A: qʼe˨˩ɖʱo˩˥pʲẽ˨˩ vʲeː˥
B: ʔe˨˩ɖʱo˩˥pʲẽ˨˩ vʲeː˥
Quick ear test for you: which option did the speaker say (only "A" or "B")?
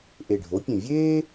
B